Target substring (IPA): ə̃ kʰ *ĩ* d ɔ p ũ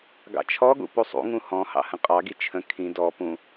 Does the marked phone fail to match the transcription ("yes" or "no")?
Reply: no